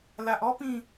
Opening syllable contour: low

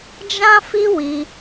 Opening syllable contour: high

